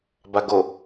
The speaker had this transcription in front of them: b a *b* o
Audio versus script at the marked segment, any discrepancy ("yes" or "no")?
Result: yes